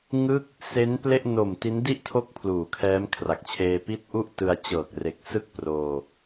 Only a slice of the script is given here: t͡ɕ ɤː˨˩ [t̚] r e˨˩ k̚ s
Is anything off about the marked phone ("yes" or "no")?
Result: yes